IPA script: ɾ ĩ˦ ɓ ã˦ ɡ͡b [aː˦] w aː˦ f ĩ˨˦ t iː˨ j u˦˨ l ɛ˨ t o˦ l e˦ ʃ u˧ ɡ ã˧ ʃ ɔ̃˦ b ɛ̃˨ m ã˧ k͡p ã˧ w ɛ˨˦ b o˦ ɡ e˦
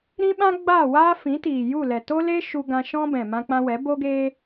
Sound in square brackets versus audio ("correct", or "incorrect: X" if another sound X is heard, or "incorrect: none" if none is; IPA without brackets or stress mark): incorrect: aː˦˨